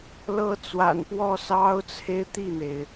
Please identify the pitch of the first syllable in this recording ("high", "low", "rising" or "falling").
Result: high